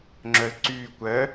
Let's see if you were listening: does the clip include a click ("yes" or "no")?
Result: yes